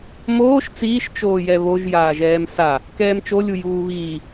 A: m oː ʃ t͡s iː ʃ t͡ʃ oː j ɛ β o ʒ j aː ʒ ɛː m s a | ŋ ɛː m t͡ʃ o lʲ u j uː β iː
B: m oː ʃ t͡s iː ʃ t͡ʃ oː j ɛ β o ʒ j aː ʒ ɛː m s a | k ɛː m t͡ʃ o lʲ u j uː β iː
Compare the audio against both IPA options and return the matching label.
B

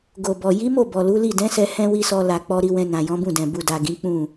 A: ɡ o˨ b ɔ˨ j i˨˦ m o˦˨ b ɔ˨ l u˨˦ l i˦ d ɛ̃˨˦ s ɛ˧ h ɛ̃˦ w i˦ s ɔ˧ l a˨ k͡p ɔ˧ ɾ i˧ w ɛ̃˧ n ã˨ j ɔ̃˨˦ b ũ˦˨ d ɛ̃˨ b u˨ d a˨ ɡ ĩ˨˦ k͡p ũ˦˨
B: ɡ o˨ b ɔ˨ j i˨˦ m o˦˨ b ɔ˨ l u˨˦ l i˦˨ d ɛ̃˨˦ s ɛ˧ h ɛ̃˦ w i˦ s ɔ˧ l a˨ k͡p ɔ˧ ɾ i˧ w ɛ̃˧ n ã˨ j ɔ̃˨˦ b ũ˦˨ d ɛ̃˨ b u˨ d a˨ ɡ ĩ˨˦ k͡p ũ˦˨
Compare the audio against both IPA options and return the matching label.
B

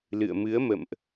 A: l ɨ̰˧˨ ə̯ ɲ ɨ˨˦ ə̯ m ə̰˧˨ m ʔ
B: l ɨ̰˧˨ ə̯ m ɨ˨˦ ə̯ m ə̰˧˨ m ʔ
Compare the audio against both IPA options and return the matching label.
B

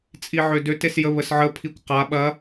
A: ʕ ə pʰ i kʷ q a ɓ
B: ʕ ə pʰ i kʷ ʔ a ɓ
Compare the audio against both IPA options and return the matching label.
A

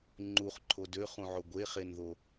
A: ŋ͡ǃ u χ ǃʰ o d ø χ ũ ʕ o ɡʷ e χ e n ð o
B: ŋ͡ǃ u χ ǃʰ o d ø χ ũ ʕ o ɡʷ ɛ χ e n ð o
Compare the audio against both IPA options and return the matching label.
A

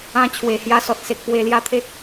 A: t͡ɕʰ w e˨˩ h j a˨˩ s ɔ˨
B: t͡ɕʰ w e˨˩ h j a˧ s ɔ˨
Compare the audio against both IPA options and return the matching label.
B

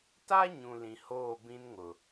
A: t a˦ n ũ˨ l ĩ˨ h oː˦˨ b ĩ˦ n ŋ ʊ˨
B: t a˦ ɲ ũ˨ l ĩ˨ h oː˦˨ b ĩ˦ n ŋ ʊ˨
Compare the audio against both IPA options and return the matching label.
B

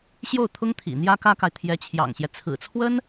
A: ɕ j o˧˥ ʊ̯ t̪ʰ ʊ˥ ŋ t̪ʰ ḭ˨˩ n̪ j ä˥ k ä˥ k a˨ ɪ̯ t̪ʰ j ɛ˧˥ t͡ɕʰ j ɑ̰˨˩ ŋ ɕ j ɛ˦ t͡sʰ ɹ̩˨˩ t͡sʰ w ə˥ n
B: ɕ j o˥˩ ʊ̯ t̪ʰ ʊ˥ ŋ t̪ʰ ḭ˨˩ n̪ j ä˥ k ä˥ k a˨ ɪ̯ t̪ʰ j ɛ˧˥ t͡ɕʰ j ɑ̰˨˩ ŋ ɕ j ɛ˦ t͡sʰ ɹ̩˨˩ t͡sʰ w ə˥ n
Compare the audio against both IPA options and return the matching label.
B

